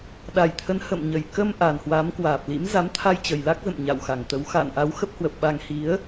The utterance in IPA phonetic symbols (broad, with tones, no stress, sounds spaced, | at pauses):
ɗ a˨˩ j t̪ʰ ə˨˦ n h ə̰˧˨ m ɲ ə˨˩ j k ə˧ m ʔ a˨˩ n h w a˨˦ m k w aː˨˩ p̚ l ḭ˧˥ m z a˨˦ m t̪ʰ a˧ j t͡ɕ ə˨˩ j l a˦˥ k̚ z ə̰˧˨ m ɲ a̰˧˨ w x a˨˩ ŋ t̪ ə˨˦ w x a̰ː˧˨ n ʔ a˨˦ w x ə˦˥ p̚ h w ə˨˩ p̚ ɓ a˧ ŋ h i˨˦ ə̯